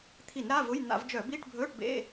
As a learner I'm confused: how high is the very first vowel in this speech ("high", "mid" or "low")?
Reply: high